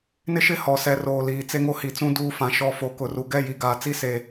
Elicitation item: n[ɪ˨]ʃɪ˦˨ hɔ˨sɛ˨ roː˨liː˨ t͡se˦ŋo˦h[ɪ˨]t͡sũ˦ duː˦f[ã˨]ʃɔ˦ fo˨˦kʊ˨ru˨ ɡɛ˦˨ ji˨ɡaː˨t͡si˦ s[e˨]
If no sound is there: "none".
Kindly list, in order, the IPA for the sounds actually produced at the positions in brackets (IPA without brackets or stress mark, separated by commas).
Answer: ɪ˦, i˨, ã˨, e˨